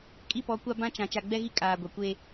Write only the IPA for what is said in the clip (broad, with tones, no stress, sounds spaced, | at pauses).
kʼ i˦˨ p ɔ˨˦ kʷ a˦ b ã˦ t͡ʃ ã˨ t͡ʃ a˨ ɡ͡b ɛ˦ ɣ i˦ kʼ aː˨ ɡʷ a˨ kʷ e˦